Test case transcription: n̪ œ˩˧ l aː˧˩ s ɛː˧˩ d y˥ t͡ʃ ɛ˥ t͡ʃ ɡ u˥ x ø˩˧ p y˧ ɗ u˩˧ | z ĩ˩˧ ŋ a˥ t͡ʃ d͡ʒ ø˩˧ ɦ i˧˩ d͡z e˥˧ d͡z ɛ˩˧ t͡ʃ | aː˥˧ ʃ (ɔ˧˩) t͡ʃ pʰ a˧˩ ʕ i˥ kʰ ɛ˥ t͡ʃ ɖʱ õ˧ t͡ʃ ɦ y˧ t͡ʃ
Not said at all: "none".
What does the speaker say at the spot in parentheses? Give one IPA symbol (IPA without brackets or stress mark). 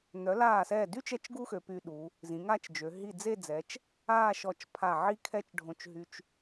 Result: ɔ˧˩